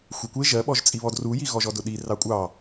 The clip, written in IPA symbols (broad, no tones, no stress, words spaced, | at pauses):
xʷekʷe ʒɜɓɔʒt͡sʼiβɔd rujiɣɔʒɔ dʊɗi rɑkʷʼɑ